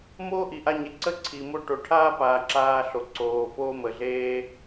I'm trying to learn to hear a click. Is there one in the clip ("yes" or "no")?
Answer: yes